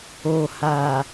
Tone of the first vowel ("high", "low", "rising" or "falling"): low